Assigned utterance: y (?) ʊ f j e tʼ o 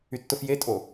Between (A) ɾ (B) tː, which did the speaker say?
B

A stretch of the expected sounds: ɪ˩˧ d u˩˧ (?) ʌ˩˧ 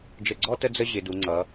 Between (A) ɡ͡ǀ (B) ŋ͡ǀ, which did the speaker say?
B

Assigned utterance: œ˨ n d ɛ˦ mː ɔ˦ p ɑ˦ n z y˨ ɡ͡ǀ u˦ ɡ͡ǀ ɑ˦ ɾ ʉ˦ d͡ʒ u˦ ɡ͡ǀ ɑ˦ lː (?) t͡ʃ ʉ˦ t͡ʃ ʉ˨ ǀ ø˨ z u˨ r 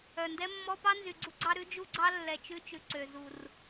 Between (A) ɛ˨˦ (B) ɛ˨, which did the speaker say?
B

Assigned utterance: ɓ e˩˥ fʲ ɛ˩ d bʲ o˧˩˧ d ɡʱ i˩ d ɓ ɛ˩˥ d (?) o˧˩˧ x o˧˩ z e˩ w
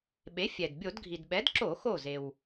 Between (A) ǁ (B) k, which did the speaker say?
A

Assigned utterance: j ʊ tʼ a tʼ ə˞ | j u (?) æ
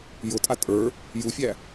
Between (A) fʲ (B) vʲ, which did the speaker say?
A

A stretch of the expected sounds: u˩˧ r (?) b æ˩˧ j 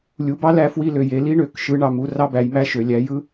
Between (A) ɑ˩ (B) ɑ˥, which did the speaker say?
B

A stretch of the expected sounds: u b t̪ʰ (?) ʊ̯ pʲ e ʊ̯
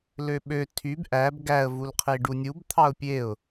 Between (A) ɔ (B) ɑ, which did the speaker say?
B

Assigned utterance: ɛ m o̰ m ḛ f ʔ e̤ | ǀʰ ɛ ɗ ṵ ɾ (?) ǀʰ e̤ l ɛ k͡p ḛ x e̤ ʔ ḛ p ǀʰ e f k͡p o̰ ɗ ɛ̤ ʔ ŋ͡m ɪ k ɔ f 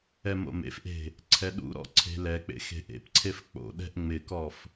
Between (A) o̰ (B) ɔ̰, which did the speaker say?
B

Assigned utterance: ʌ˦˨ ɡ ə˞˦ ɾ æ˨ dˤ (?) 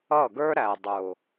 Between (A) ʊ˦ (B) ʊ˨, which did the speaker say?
B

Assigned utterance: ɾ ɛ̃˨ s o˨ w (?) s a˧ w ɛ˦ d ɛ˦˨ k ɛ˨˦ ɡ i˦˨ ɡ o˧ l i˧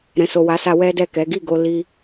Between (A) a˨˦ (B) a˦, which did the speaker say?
A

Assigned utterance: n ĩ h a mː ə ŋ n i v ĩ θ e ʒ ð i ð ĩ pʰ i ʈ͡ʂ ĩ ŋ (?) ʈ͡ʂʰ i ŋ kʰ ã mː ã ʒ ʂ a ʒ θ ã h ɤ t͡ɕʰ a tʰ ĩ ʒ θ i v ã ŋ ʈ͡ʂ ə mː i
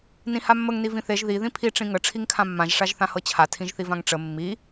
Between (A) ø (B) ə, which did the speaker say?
B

